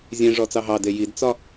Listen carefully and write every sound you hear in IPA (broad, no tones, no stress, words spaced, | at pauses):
zʲẽ ʐɔt͡sɑɦɑde jidt͡sɒ